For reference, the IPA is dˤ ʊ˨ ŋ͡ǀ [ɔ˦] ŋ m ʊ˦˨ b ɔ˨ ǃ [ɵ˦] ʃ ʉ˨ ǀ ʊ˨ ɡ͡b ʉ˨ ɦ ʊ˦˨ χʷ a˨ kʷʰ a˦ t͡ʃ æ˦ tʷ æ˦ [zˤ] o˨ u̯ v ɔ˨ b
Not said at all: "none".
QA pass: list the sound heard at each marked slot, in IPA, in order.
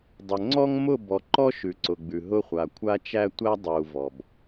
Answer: ɔ˦, ɔ˦, dˤ

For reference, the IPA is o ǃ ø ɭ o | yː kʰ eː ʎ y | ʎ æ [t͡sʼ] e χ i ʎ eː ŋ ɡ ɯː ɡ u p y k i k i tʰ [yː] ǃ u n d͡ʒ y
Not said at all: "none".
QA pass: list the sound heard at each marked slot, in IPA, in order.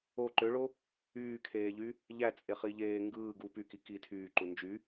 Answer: t͡sʼ, yː

